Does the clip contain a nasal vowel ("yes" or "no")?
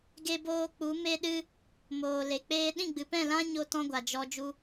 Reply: yes